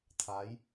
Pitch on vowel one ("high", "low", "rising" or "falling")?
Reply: rising